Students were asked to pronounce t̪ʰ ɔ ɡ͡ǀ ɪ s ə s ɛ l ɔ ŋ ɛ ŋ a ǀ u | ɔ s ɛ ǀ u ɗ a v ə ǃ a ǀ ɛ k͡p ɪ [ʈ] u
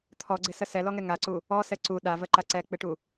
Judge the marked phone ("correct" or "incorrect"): correct